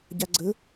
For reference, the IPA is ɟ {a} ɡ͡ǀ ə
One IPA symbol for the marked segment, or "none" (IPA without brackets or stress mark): a